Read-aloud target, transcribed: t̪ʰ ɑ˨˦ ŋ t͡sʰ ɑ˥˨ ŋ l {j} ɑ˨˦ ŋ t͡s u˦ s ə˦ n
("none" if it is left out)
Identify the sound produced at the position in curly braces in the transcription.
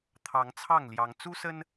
j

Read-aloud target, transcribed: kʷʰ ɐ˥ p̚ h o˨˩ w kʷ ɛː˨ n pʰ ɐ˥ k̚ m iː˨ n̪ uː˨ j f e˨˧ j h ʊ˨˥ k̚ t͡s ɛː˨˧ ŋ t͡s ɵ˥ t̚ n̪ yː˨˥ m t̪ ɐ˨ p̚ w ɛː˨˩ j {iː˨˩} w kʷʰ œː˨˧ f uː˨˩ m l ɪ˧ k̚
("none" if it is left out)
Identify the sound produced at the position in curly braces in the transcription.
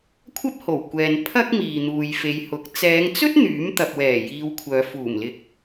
iː˧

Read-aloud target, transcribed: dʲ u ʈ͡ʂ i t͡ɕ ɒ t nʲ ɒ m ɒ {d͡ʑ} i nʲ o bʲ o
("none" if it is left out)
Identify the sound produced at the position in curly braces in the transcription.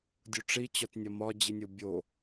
d͡ʑ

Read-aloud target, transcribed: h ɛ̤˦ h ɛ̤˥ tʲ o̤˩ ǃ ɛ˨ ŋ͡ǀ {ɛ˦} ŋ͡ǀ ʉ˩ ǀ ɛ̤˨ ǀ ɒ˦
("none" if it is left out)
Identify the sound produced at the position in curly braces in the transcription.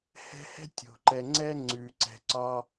ɛ˥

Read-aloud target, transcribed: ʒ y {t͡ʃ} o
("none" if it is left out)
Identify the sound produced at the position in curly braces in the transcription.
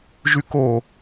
k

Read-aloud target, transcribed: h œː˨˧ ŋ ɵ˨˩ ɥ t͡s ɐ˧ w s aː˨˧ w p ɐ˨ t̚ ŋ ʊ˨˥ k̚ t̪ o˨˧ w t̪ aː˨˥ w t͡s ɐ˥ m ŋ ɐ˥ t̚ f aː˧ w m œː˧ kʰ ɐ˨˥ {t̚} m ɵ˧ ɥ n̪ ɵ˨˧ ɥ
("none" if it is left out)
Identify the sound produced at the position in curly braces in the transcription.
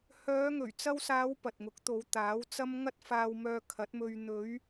t̚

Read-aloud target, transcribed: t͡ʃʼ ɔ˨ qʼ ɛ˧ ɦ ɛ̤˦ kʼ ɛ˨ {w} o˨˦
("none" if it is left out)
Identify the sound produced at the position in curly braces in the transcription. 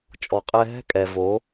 v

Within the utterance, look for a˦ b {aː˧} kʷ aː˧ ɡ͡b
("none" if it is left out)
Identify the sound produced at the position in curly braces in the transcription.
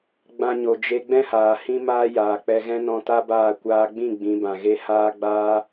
aː˦˨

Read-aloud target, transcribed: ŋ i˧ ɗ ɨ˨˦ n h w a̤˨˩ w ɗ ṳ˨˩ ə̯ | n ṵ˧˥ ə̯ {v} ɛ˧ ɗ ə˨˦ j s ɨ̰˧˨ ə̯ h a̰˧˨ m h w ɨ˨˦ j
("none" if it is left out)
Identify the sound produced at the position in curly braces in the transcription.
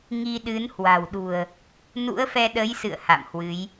f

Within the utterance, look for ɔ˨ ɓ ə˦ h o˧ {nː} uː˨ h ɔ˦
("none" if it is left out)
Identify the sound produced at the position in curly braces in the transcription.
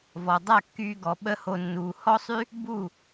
nː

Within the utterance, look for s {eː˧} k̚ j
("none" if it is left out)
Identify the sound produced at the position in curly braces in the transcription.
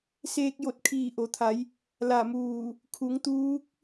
eː˧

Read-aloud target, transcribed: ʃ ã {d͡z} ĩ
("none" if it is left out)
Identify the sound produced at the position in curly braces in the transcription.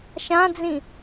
d͡z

